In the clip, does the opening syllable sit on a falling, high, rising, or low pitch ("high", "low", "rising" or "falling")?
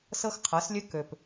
high